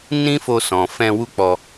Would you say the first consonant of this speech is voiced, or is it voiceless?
voiced